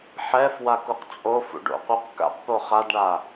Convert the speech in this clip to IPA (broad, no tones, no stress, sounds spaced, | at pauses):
ħ ɛ f w a k u q t͡sʼ o f ṵ ɖ o̰ qʷ œ q k a̰ q p o χ a d ɳ a